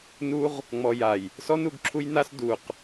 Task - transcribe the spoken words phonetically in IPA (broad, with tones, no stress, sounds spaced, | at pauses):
n u˦ ʁ | ŋ͡m ɔ˨ j a˨ j | s ɔ˦ n u˦˨ ɡ ǁʰ u˦ j n a˦ s d u˨ q